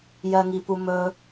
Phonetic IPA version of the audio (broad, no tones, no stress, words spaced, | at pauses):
jɜŋipumɵ